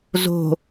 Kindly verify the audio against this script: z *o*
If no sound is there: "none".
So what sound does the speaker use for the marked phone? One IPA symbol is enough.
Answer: o̤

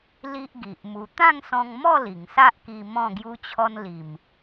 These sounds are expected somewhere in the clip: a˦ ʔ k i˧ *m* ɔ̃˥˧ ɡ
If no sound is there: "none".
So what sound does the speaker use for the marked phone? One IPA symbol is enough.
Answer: m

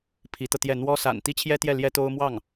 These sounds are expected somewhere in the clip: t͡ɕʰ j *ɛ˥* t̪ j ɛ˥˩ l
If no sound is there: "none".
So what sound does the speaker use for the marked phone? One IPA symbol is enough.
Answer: ɛ˥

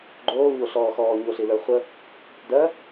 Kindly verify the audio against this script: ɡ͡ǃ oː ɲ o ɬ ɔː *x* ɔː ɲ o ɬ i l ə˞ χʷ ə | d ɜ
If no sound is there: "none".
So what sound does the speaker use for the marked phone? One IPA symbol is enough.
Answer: x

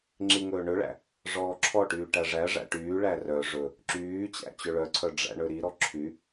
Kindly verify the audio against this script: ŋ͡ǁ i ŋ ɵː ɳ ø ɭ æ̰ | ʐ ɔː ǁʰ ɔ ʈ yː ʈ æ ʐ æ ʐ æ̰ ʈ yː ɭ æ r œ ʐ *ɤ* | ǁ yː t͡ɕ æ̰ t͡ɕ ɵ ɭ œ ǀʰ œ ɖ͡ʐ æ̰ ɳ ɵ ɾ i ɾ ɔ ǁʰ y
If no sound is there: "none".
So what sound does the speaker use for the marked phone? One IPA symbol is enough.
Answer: ɵ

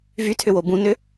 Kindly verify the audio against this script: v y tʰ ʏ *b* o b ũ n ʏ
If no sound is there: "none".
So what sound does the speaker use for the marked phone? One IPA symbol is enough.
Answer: w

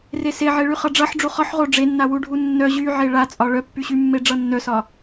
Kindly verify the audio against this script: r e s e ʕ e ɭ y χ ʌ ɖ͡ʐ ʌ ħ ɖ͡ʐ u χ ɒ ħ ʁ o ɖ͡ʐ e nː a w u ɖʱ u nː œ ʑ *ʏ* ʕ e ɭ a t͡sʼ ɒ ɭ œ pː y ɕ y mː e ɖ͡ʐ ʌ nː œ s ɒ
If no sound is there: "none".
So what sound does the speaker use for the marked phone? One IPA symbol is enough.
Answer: y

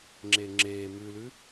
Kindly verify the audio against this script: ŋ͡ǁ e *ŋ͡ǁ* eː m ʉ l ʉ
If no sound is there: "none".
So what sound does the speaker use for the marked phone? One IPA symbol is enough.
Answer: ŋ͡ǁ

